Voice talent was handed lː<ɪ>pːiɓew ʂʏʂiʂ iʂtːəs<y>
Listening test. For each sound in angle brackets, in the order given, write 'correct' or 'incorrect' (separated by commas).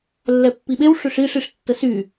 incorrect, correct